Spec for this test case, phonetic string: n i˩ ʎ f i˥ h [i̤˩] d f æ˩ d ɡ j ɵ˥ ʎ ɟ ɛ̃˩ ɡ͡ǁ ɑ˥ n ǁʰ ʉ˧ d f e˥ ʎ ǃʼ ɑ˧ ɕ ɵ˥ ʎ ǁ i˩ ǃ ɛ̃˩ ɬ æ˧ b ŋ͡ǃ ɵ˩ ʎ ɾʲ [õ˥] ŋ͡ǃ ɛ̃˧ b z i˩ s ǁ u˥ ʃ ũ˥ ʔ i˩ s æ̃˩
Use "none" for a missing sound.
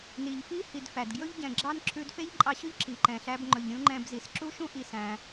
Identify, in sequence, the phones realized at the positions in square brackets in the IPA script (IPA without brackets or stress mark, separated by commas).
i˩, ũ˥